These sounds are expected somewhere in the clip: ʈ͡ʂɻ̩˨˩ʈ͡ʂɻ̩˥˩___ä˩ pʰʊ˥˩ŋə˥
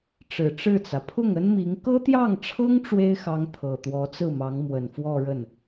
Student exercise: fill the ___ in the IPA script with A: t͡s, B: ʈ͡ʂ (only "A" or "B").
A